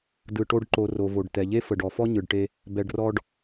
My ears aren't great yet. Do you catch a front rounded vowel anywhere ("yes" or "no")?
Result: no